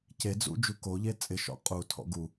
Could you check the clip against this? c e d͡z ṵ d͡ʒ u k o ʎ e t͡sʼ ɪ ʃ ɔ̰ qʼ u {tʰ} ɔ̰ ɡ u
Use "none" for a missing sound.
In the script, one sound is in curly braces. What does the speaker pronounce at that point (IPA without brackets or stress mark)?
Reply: tʰ